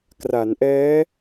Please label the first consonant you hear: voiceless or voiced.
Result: voiceless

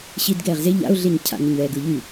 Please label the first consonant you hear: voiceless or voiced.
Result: voiceless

